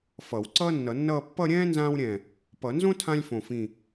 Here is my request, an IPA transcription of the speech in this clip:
f ʌ˨˩˦ w ǀ ʌː˥ nː ʌ˨˩˦ nː ʌː˥˧ pː ʌ˥˧ ɾʲ ɛ̃ː˥ n z ãː˥ w ɾʲ ɛ̃˧˩ | p ʌ˨˩˦ n z õ˥ tʰ ã˥ lʲ f õ˧˩ f ĩ˧˩

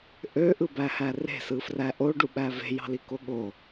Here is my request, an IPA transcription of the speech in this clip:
ʔ ø ʔ ɯ b æ h æ r e̤ s ɯ f r æ ʔ o ɖ u ɓ æ v e̤ j ɑ̤ l i k o ɠ o

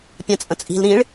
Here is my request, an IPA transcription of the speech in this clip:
pʲ æ̃ t͡sʼ ə̃ t͡sʼ i̤ l ɾ ĩ ɭ

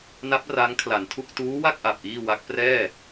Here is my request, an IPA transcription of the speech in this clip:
n a˦˥ p̚ r a˦˥ ŋ kʰ l a˩˦ n tʰ u˥˩ k̚ t uː˦˥ w a˥˩ k̚ ʔ a˨˩ p̚ ʔ iː˥˩ w a˦˥ k̚ p r ɛː˥˩

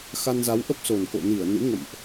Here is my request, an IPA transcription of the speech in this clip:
x a˧ n z a˨˦ w ʔ ə˦˥ p̚ s o˨˩ n k o̰˧˨ n i˧˩ ə̯ n ɨ̰˧˥ ŋ ə̰˧˨ m ʔ

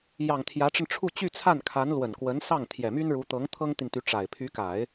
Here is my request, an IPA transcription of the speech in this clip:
j ɑ˨˩ ŋ t̪ʰ j ä˧˥ ʈ͡ʂ ə˧ n ʈ͡ʂʰ u˥˧ t͡ɕ y˥˧ t͡sʰ a˥˩ n kʰ a˧˥ n l w ə˨˩ n k w ə˧˥ n s ɑ˥˩ ŋ t̪ʰ j ɛ˨˩ m y˥ n ɻ u˧˥ t̪ ɤ˧˥ ŋ t̪ʰ ɤ˥ ŋ t̪ i˨ n t̪ y˧˥ ʈ͡ʂ a˨˩ ɪ̯ pʰ y˧˥ k a˨˩˦ ɪ̯

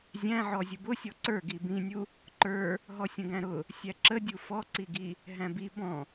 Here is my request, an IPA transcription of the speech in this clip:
zʲ æ̃ ʕ ɔ zʲ ʊ b ʊ sʲ ɔ ǀ ə˞ ɡ i b ĩ nʲ u | ǃ ə˞ | ɦ ɔ sʲ ə̃ ɡ æ̃ ɾ ʊ | sʲ æ ǁ ə dʲ u f ɔ ǀ i ɡ i | ɦ æ̃ b i b ɔ̃

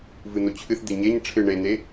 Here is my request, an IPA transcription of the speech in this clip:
v ɨ n̪ o t͡ɕʰ ɨ θ d̪ e ɲ e ɲ ʈ͡ʂʰ ɨ ɳ e n̪ e

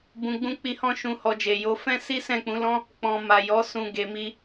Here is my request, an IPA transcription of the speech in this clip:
b ũ˨ ɡ͡b ũ˧ k͡p i˧ h ɔ̃˦ ʃ ũ˧ h ɔ˧ d͡ʒ e˨ j o˨˦ f ɛ̃˦ s i˦ s ɛ̃˦˨ k͡p ũ˨˦ l ɔ̃˦ | k͡p ɔ̃˨ m a˨ j ɔ˨˦ s ũ˧ ɡ e˨ m i˧

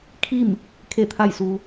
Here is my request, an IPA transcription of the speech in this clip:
kʰ i˥˨ m | kʰ e˥˨ t̪ʰ a˥˨ j s uː˧

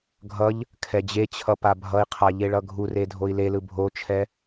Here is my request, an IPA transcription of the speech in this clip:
ɡʱ ʌ ʎ | kʰ ɛ d͡ʑ e t͡ɕʰ ʌ p a bʱ ʌ i̯ qʰ a ʎ e ɭ ʌ ɡʱ u r e dʱ o i̯ l e l ɯ bʱ o t͡ʃʰ ɛ

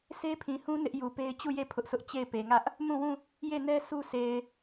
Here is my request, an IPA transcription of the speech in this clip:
sʰ e˦ pʰ ĩ˨ h ũ˦ n ɪ˦ ʔ j u˨ p e˦ ɪ̯ t͡ɕ u˦˨ j e˦˨ pʰ ʊ˦ ʔ sʰ ʊ˦ ʔ t͡ɕ e˦˨ ɪ̯ p e˨ ŋ ä˦ ʔ | m ũ˦˨ w ũ˦˨ | j e˦˨ n ɛ˦ sʰ u˦ sʰ e˨ ɪ̯

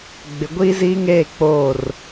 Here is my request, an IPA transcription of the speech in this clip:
ɡ͡b ɪ˨ ɡʷ iː˦ z iː˦ ŋ eː˦˨ k͡p oː˦˨ r

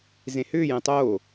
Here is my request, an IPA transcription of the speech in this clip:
z ẽ h ʏː j ẽ tˤ oː

